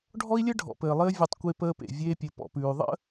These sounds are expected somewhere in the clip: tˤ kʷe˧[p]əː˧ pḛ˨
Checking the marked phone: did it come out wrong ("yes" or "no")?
no